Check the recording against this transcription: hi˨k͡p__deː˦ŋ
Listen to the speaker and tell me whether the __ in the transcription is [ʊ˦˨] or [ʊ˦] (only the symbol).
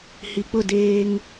ʊ˦˨